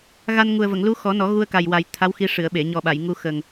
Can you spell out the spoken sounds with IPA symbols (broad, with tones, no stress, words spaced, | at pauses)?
ɣa˧nŋu˨˩ə̯və˨˩˨ŋ lu˧˥xɔ˨˩˦nɔ˨˩˦ ɣu˧ə̯ka˨˩jwa˨˩j t̪ʰa˧˥wxi˧ ʂɨ˨˩˨ə̯ɓe˨˩˨ɲɔ˨˩ ɓa˨˩˨jŋu˧ xə˨˩ŋ